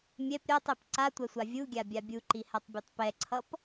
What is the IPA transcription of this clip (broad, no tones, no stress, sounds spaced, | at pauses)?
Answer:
mʲ ɛ p ɾʲ a tˤ e p ǀ a tʷ ɛ sʷ a vʲ u ɡʲ a bʲ a bʲ u ǃ i h a tˤ bʲ a tˤ p ɛ ǀʰ ʌ p